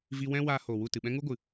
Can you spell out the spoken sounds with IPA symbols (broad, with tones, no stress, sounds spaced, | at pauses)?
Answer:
v i˧ w ɛ̃˦ w aː˧ h oː˨ w u˦˨ t ɨ˨ ɓ ɛ̃˦ ŋ u˦ ɡʷ ɨ˨